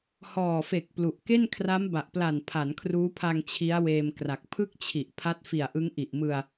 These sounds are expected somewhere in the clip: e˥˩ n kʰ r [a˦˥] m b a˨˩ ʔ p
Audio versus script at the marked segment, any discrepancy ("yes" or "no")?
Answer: no